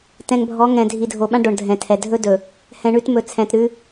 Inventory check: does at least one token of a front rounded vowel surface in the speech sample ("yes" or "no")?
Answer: no